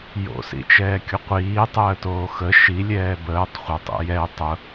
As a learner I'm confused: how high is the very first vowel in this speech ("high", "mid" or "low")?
mid